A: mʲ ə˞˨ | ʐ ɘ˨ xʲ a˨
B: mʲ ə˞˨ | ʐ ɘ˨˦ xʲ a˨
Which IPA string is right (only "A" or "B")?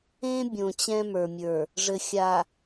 A